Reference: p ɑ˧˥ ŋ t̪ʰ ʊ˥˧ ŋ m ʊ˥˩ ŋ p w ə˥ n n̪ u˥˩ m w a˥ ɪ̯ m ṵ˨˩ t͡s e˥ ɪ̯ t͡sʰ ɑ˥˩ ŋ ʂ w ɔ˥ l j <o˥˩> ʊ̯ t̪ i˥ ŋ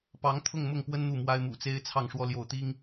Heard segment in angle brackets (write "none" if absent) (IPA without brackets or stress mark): o˥˩